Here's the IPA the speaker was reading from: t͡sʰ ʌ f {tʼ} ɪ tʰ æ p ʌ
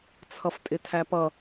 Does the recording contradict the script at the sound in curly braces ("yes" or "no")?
no